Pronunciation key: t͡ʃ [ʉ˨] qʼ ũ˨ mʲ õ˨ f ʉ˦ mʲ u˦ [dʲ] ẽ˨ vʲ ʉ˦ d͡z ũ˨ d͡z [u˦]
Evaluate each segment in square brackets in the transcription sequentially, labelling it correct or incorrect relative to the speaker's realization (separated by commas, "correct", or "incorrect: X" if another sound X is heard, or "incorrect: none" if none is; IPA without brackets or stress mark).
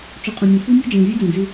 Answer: incorrect: u˨, incorrect: d͡ʒ, incorrect: ʉ˦